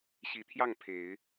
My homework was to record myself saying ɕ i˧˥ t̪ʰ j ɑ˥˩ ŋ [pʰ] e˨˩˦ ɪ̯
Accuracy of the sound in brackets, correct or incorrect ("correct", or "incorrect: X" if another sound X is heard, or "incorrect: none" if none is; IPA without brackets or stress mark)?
correct